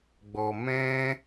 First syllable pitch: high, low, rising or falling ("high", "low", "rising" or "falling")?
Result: low